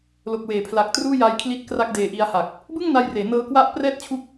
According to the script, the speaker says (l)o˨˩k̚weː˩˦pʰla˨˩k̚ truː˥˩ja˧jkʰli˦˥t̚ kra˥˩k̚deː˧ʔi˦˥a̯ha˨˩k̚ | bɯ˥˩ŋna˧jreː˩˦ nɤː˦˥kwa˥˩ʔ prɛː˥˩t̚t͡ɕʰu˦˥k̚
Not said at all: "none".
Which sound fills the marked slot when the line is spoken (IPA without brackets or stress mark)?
l